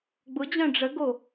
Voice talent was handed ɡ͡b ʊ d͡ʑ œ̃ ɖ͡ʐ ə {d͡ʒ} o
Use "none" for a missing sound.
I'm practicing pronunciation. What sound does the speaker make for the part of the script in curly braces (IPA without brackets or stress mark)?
ɡ